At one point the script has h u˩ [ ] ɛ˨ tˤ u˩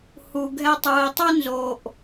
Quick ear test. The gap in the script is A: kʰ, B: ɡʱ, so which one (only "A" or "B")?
B